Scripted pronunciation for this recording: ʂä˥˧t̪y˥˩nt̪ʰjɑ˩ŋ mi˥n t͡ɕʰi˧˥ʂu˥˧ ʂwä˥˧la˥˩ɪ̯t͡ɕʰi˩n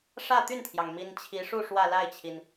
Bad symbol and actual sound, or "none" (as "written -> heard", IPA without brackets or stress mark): none